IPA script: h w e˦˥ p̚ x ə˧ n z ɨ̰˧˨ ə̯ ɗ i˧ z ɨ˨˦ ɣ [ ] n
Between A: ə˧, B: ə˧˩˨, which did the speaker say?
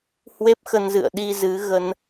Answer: A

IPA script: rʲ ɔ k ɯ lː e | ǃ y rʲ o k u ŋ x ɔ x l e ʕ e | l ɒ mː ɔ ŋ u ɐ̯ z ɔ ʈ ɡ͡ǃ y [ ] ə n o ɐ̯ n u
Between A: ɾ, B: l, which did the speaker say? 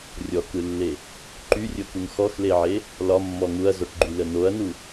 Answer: B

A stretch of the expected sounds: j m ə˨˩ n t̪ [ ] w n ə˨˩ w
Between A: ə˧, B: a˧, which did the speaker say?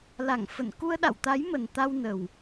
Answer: B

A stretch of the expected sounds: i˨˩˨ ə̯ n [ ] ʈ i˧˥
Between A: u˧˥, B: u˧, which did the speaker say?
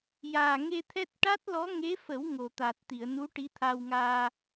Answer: A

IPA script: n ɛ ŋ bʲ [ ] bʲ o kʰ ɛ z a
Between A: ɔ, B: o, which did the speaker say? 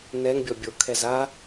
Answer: A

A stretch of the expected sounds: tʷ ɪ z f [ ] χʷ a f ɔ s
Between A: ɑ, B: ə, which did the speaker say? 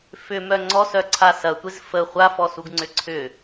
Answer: B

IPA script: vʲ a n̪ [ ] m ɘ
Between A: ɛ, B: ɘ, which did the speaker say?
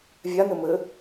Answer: B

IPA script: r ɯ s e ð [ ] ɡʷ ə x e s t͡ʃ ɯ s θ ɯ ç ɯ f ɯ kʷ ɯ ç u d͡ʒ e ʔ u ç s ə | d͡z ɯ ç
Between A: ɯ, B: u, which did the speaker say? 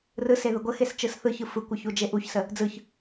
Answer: A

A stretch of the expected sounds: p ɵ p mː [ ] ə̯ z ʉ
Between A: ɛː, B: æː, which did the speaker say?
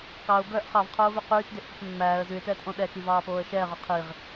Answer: B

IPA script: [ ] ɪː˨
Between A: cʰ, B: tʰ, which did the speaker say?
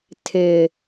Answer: B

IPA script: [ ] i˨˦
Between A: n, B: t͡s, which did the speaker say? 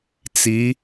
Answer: B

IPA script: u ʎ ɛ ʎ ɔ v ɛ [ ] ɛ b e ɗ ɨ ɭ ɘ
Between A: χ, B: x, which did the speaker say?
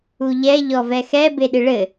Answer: B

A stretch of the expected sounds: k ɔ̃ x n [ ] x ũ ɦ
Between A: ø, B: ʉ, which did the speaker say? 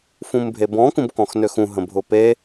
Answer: A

